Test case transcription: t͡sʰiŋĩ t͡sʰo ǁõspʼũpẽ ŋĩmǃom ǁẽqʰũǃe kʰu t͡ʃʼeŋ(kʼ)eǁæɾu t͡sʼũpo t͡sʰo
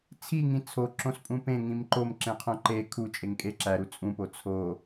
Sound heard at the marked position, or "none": kʼ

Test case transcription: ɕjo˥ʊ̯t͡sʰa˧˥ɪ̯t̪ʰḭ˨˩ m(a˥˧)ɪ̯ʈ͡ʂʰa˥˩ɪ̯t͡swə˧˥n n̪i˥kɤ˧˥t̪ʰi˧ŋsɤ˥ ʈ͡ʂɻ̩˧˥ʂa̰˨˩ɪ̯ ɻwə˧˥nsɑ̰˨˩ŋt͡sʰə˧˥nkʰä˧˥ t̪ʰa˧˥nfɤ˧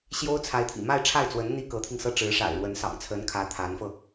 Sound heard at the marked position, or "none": a˥˧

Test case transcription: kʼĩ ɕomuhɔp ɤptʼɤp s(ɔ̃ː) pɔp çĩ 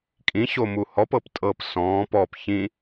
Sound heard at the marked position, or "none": ɔ̃ː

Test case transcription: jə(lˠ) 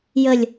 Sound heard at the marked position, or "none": lʲ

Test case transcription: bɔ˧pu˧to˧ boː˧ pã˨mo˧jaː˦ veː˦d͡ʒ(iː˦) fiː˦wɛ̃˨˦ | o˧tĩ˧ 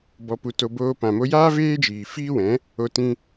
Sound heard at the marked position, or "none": iː˨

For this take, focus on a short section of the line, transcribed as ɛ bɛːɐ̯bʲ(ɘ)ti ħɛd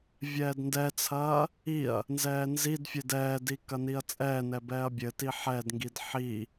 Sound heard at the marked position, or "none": ɘ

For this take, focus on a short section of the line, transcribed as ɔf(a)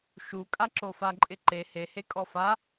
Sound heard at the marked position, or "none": a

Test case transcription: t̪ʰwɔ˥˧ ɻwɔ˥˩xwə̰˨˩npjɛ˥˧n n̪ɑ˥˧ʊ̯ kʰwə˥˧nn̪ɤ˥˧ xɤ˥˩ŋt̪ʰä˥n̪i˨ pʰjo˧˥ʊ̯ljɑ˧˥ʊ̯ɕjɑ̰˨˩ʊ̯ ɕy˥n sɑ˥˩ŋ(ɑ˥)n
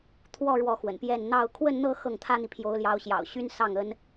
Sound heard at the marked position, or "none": ə˥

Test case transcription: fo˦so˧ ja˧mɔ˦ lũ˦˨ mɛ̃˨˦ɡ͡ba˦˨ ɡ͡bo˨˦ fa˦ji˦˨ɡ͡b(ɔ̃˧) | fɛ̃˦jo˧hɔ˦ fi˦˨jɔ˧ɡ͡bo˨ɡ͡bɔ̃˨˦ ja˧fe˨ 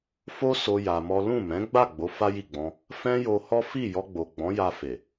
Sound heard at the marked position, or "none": ɔ̃˧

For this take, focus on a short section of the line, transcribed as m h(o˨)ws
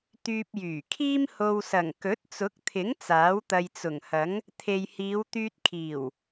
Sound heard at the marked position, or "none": o˧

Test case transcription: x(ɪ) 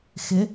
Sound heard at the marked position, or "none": ɪ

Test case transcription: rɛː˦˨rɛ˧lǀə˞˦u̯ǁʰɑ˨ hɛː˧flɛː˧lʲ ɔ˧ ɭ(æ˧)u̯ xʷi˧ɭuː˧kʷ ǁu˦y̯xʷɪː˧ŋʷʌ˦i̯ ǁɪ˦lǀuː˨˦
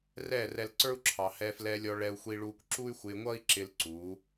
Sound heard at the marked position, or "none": ɛ˧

